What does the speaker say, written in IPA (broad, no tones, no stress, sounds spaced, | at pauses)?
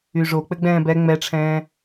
y ʐ o k͡p ɘ ɡ͡b ɛ̃ː b ɛ ŋ͡m ɛ ʈ͡ʂʰ ɛ̃ː